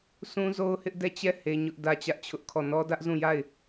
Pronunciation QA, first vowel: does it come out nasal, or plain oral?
nasal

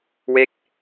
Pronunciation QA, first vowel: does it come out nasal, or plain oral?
oral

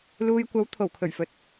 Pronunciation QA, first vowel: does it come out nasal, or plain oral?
oral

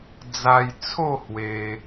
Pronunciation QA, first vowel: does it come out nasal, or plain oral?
oral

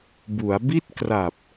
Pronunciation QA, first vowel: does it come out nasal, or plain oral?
oral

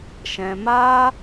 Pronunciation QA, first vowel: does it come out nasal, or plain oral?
nasal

